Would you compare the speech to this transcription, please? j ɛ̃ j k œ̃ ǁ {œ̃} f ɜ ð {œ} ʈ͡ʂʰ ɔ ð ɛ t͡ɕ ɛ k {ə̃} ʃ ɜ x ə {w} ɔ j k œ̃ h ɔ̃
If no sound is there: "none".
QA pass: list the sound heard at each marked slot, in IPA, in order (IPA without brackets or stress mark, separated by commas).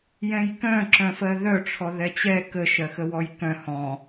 œ̃, œ, ə, w